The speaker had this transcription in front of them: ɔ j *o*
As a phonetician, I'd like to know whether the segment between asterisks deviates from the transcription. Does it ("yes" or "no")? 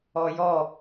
yes